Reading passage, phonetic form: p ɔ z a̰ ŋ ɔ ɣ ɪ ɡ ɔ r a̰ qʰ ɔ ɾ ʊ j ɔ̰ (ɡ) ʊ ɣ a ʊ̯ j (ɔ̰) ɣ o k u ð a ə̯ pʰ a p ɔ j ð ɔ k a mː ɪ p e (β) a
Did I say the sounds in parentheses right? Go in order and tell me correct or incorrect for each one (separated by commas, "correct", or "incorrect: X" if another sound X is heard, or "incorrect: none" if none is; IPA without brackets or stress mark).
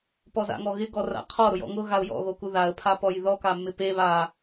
incorrect: ŋ, correct, correct